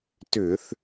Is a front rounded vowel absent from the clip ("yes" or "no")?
no